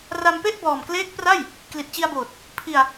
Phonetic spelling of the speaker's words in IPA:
r a˧ m p e˥˩ ʔ b ɔː˨˩ m k l eː˦˥ k̚ p r a˥˩ j | k l i˨˩ t̚ t͡ɕ i˧ a̯ b oː˨˩ t̚ | pʰ i˧ a̯

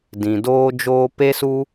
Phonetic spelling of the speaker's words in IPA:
d ĩ˨ d oː˦ d͡ʒ oː˦ p e˦ s u˦

